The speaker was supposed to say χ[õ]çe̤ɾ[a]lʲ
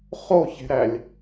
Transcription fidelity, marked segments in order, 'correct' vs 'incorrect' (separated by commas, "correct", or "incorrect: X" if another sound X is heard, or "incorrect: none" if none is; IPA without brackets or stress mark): incorrect: o, incorrect: æ